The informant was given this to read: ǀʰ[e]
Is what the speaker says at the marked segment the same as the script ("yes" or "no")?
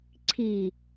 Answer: no